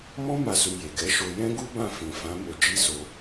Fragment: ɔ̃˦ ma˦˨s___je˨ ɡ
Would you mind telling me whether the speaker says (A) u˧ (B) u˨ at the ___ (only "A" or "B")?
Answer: A